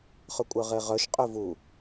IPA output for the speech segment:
χ ɵ kʷʼ œ ʁ e ʁ œ ʃ qʼ ɵ v u

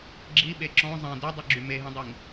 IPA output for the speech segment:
ɡ͡ǁ i ɓ e ǁ ɔ̃ zˤ ɛ̃ d ø dˤ y ɡ͡ǁ y m e ɦ ĩ dˤ i ŋ

